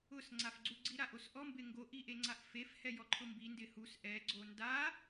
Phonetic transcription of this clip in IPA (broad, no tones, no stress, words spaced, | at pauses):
ʊsŋ͡ǀafɡ͡ǀuɡ͡ǀi ɾaʔosʔɔmbɪ ŋɡoʔiʔe ŋ͡ǀaʔfef hɛjɔǃʰʊmbi ndɪhus ʔɛɡ͡ǀo nda